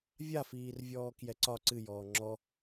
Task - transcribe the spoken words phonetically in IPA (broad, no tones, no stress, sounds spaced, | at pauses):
vʲ a f iː r vʲ ɔː k j ɛ ǀ ɒ ǀ ɨ j ɔː ŋ͡ǁ ɔ